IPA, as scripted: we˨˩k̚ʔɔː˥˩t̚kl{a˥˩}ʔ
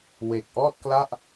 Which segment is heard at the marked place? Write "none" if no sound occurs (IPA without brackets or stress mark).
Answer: a˥˩